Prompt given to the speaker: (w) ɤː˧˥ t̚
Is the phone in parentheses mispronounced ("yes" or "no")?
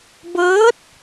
yes